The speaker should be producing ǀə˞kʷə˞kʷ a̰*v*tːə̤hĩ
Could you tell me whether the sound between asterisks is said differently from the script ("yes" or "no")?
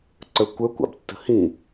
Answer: yes